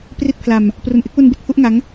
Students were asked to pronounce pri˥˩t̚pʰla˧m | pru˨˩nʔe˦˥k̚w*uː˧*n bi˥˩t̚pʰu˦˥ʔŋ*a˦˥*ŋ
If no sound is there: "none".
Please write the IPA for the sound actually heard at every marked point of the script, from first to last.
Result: u˧, a˦˥

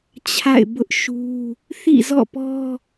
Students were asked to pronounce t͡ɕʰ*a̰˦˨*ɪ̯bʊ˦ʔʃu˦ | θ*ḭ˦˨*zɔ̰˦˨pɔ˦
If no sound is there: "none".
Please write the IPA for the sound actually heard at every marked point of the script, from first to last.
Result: a̰˦˨, ḭ˦˨

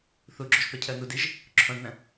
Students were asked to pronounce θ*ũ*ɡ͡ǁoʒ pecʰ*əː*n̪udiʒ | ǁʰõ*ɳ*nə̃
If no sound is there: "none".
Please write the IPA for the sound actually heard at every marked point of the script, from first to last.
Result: u, əː, ɳ

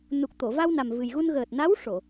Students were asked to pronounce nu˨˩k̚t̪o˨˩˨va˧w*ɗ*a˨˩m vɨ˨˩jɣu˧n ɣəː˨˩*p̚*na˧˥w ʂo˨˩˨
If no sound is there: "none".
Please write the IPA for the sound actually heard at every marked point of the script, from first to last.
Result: n, t̚

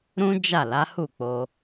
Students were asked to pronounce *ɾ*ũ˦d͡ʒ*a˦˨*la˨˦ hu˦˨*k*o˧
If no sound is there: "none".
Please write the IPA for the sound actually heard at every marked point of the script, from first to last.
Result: ɾ, a˦˨, k͡p

